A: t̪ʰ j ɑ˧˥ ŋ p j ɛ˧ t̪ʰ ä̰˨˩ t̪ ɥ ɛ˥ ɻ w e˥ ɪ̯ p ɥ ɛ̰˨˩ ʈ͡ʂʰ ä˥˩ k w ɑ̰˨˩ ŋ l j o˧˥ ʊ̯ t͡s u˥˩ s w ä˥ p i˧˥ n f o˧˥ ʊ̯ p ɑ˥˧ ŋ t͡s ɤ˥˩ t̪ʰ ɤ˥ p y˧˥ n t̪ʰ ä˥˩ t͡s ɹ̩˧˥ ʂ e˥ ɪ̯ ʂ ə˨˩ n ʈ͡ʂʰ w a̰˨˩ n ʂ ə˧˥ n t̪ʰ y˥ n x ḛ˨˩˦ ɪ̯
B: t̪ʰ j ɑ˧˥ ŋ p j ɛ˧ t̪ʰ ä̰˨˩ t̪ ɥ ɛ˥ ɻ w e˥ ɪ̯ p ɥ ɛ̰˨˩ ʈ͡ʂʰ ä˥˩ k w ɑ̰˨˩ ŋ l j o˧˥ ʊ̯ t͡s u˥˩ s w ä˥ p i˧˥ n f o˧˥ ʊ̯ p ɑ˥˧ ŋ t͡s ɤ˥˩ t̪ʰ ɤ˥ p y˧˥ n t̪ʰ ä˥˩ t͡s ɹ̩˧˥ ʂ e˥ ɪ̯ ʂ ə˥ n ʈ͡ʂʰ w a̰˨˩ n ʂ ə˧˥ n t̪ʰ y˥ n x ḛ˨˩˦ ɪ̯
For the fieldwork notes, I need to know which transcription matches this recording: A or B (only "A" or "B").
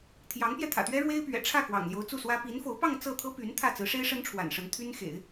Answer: B